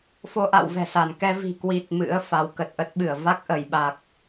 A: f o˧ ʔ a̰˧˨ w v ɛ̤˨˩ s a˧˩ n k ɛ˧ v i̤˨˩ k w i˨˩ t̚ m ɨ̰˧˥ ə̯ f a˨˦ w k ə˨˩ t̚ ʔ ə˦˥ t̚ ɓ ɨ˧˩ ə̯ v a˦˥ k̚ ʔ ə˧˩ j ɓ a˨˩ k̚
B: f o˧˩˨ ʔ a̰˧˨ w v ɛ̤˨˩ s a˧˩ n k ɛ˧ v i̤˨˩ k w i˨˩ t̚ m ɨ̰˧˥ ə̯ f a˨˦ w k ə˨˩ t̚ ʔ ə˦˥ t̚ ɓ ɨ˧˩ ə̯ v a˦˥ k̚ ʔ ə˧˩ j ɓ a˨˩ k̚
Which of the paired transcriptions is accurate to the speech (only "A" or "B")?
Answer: A